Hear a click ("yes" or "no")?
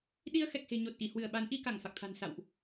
no